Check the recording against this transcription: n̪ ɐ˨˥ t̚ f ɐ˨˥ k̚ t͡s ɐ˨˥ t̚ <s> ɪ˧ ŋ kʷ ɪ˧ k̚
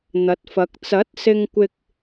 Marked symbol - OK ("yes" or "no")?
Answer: yes